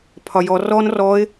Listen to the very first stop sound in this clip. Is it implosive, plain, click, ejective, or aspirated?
aspirated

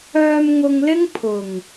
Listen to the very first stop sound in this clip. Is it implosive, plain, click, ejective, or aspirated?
aspirated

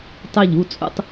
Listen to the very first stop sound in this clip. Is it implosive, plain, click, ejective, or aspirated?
plain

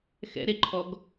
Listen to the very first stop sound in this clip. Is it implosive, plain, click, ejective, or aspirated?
click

